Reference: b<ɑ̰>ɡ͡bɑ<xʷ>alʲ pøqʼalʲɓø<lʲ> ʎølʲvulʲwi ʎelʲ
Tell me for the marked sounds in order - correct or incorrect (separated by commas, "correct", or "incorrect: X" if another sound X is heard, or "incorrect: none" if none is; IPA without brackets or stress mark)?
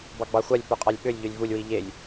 incorrect: ɑ, correct, correct